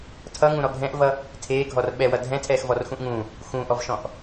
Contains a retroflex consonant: no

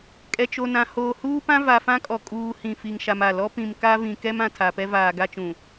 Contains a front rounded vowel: no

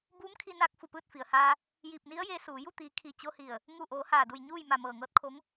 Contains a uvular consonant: no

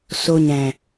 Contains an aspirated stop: no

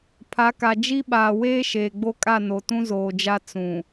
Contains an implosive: yes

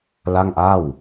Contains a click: no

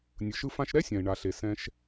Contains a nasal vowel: yes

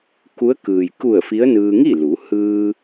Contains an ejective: no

